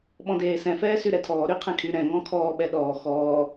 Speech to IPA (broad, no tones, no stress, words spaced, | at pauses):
ɓɔ̃deːsɛ̃ fɛːsyɾɛtʰɔː ɾyqʰɛ̃kʰy ɾɛ̃ ŋɔ̃kʰɔː ɓɛɗɔː xɔː